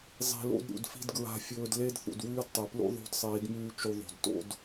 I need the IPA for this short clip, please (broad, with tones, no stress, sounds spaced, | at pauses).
zˤ i̤˨ l o̰˦ d ɾʲ ṵ˨ d f i̤˦ d ɡ ɹ a̤˦ fʲ ɵː˦ d l e˦ d θ ṵ˨ d w ʉː˦ d tˤ e˨ p l ṵ˦ ðˤ o̤˦ d sˤ iː˨˦ d m ʉː˦ t͡ʃ u˦ ðˤ o̤˨ d t o̰˦ d